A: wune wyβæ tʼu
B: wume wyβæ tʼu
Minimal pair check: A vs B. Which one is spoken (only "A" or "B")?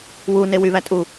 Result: A